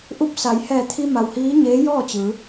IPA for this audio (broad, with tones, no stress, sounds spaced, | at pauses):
ʔ u˧˥ p̚ s a˩˧ j h ɛː˧˩ t̪ʰ i˧ m a˩ w h iː˧˥ ɲ eː˧˥ j ɔː˥˨ t͡ɕ ɯː˩˧